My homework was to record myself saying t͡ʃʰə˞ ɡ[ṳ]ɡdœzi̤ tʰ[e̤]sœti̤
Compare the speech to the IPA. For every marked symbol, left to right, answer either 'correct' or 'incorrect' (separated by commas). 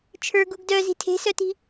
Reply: incorrect, correct